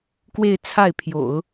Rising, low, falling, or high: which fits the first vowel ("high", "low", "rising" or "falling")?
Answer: falling